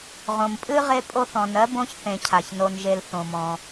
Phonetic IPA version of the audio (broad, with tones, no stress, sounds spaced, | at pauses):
ʁ õ˨ m pʼ ɨ˥ ʁ e˦ pʼ o˦ θ ɔ̃˨ n ɜ˦ b õ˦ ç θ ẽ˨ cʰ a˩ ç n o˨ n ʒ e˨ l θ õ˩ m ɔ̃˩